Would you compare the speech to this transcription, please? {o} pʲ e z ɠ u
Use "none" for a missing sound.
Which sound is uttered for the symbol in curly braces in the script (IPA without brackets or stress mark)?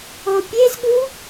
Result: o